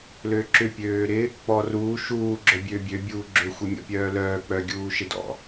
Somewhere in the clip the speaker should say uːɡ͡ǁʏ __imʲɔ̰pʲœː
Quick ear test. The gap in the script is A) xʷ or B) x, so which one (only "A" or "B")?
A